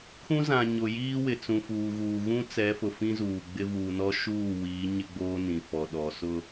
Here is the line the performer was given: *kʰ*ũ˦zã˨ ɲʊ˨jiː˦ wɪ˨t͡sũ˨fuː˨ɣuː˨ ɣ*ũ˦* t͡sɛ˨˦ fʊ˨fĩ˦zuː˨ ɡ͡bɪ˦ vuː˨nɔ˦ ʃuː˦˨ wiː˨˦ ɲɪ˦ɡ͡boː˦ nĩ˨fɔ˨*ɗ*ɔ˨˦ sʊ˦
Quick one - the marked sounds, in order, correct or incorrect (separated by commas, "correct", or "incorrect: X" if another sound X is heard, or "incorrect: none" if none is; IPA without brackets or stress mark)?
correct, correct, correct